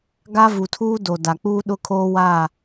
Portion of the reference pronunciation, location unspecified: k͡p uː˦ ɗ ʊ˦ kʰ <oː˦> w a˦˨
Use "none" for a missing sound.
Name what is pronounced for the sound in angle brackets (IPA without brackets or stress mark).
oː˦